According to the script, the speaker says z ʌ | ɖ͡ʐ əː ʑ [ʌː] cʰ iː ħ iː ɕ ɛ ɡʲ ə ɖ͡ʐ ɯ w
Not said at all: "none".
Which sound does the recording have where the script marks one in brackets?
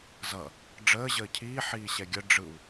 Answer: əː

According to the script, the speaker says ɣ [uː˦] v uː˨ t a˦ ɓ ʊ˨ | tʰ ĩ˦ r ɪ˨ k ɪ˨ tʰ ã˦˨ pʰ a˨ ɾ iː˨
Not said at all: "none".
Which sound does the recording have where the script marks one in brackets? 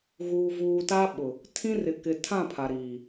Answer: uː˨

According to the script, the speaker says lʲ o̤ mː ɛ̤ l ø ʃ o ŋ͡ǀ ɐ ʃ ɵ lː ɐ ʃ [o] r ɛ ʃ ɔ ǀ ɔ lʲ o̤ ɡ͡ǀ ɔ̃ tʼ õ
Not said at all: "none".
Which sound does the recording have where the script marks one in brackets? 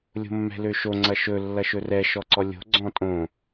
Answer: ɵ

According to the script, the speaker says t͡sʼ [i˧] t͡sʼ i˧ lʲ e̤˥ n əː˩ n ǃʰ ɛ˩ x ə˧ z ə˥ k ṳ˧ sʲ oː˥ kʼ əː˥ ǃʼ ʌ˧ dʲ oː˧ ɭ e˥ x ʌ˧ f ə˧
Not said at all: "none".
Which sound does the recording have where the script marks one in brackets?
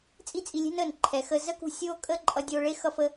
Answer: i˥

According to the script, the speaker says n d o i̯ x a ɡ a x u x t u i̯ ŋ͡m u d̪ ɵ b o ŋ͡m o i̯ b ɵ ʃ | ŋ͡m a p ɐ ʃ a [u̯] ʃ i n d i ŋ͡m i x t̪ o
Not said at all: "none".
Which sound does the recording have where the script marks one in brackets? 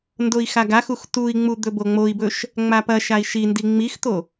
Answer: i̯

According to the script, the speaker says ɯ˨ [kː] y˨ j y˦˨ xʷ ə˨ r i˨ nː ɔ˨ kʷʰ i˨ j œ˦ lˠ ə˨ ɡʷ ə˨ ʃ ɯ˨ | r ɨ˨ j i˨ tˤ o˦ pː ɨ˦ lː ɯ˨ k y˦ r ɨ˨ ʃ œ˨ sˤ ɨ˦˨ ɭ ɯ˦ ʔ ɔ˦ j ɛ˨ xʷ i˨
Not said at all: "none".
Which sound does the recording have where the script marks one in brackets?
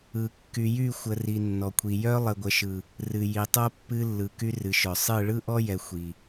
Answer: kː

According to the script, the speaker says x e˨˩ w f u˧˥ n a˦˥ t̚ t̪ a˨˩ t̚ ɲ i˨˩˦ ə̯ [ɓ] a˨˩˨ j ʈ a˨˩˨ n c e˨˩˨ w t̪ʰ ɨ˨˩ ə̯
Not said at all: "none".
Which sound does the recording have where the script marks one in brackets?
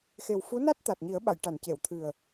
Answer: ɓ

